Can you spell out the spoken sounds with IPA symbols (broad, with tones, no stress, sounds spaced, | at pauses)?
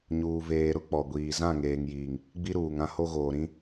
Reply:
ɲ uː˨ v eː˨ ɾ ʊ˦ k͡p ɔ˨ ɡʷ iː˨ z ã˦˨ ŋ eː˨ ŋ j iː˨ ŋ | ɡ͡b i˦ ɾ uː˨ ŋ ã˦ h o˦ ɣ oː˨ ɾ ĩ˦